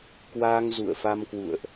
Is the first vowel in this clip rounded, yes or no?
no